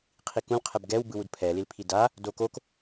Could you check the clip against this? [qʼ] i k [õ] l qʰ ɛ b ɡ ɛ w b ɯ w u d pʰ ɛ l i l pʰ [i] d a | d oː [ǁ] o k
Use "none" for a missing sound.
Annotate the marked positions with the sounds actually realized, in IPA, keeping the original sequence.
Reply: qʰ, ũ, i, k

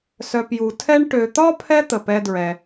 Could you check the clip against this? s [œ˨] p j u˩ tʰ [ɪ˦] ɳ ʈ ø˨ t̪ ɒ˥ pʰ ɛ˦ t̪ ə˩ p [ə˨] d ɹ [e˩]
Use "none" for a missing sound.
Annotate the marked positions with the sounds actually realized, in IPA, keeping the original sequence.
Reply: œ˨, ɛ˦, ɛ˨, ɛ˩

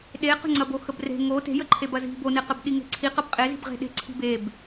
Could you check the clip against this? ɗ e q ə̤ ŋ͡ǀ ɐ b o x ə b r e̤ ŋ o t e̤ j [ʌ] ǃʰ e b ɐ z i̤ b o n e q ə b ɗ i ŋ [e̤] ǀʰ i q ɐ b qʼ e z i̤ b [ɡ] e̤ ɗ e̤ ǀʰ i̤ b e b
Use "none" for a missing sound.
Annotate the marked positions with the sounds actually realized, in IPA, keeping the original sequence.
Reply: ə, e̤, ʁ

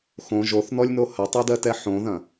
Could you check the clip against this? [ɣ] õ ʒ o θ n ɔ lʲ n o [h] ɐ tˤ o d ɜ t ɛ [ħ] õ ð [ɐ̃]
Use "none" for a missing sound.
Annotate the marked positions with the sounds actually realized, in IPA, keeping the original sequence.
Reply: x, h, ħ, ɐ̃

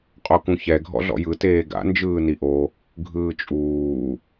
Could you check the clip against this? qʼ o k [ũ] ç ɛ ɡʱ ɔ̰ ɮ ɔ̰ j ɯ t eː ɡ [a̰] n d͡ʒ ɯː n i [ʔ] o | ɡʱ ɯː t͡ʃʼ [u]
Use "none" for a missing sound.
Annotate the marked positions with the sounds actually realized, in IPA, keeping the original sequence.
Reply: ũ, a̰, ʔ, uː

